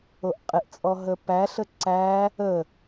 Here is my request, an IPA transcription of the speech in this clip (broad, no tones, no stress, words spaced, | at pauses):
oʔqʼeʔt͡sʼɔ ɦəpæɬə ǀæ | ə